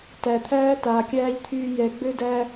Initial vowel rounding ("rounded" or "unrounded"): unrounded